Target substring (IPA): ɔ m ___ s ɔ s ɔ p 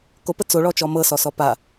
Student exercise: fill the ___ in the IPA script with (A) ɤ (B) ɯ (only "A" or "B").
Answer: A